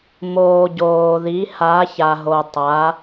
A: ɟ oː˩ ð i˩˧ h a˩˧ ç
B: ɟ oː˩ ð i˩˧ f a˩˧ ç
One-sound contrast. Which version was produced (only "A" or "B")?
A